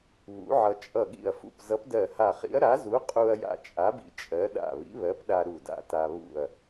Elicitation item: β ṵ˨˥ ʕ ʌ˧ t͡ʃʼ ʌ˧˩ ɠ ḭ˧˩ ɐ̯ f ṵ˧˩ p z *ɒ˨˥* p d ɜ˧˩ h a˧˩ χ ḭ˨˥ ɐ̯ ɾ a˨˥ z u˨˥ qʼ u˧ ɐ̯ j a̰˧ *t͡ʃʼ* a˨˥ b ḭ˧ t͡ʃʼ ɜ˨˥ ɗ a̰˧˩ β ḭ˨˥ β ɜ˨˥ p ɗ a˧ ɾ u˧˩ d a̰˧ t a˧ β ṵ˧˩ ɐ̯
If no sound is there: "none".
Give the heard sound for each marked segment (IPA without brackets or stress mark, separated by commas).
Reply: ʌ˨˥, t͡ʃʼ